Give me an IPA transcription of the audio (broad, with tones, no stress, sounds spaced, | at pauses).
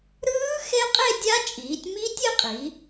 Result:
ɾ ɯː˦˥ x e˦˥ qʼ e˥˧ dʲ a˦˥ t͡ʃʼ iː˩˧ tʲ m i˦˥ tʲ e˥˧ qʼ i˩˧